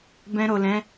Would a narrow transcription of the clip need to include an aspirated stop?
no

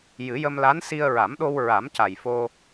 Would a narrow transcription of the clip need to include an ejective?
no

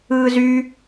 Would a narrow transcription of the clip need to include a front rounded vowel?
yes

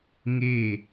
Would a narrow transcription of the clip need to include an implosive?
no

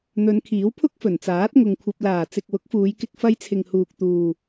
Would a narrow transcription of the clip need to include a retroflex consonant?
no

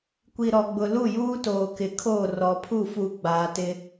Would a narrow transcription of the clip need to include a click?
no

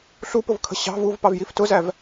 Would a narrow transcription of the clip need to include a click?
no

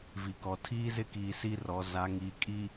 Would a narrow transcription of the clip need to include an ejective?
yes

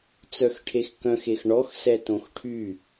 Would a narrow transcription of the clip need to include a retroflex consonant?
yes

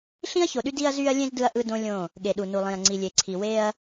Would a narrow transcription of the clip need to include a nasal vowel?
yes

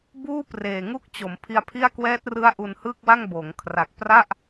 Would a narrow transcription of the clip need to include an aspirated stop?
yes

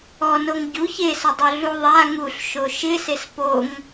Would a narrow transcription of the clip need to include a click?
no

